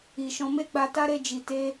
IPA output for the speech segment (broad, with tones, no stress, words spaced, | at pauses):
i˧ʃɔ̃˦ me˦ ɡ͡ba˧ta˦ɾe˧ d͡ʒi˧ te˦